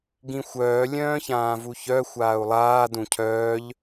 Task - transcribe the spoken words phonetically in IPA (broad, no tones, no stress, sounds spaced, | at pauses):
ɡ ĩ xʷ œː lʲ œ̃ː ç ãː v u ç œ xʷ aː u̯ lˠ aː d ũ cʰ œː ʎ